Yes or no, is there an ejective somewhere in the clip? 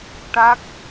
no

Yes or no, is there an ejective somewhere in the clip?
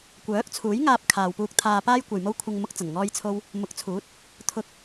no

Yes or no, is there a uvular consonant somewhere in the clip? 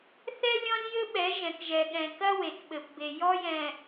no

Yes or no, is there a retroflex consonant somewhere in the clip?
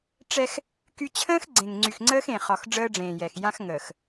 yes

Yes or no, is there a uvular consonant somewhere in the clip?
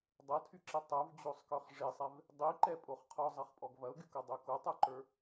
yes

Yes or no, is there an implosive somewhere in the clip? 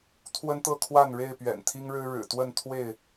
no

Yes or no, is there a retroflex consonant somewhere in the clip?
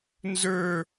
no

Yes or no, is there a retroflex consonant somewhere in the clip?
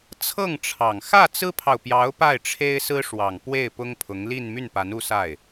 yes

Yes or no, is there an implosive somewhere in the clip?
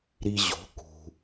no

